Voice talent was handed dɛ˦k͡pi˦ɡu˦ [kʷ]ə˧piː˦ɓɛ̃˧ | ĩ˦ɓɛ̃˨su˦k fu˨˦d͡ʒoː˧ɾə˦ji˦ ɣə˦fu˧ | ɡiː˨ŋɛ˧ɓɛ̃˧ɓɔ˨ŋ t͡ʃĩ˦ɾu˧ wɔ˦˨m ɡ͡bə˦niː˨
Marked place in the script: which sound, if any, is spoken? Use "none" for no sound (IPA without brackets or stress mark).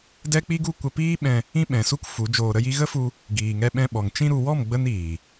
kʷ